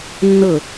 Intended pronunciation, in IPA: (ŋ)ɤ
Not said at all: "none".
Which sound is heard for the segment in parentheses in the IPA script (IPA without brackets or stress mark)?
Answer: nː